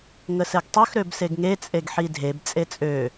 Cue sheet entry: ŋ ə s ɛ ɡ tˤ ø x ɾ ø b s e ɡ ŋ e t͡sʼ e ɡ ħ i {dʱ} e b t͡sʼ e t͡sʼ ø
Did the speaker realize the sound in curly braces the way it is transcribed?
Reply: yes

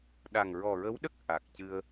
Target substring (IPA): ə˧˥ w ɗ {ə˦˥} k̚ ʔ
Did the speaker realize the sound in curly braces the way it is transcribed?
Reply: yes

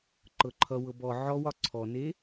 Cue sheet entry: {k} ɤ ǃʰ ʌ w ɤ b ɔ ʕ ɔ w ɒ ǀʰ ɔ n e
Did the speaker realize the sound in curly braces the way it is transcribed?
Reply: no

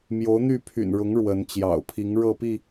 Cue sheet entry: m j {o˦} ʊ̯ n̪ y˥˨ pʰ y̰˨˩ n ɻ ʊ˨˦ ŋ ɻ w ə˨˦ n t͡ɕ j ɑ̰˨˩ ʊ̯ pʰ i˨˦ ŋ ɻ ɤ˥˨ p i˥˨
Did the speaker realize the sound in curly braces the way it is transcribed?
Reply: no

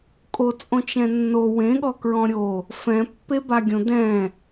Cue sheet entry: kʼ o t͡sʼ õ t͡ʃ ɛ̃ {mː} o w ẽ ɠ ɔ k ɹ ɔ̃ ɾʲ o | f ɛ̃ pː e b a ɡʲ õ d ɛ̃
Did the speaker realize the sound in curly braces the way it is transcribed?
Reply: no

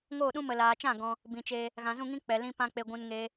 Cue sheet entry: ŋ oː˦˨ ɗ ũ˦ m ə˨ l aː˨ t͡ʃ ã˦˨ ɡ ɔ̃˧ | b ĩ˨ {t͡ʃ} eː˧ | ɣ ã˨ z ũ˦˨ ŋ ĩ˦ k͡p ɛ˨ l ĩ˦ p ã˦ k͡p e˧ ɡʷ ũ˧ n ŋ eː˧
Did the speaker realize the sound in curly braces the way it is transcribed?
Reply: yes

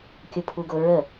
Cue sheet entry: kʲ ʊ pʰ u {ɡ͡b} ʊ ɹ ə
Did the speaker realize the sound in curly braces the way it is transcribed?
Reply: no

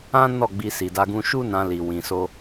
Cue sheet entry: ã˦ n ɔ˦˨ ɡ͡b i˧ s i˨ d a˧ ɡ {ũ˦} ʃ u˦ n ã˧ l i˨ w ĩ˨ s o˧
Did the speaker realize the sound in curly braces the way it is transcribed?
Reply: no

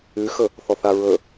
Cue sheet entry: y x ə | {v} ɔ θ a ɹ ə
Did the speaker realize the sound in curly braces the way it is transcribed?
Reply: no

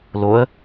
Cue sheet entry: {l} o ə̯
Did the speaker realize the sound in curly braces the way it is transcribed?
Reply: yes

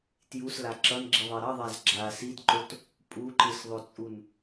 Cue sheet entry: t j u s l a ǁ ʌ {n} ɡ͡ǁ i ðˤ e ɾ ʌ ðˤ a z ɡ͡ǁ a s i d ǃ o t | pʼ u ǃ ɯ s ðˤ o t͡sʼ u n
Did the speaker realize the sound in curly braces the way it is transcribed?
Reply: yes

